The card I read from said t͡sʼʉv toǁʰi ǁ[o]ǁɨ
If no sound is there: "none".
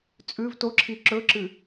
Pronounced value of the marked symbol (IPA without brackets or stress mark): ɵ